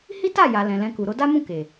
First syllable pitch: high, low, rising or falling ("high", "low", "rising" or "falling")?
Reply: high